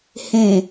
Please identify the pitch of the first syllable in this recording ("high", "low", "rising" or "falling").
low